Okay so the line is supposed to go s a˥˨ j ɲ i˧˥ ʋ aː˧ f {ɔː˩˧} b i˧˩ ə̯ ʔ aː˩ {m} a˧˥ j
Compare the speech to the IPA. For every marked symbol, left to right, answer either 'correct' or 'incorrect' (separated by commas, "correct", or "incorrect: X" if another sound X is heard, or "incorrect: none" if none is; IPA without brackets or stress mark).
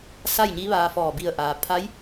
incorrect: ɔː˧˩, incorrect: pʰ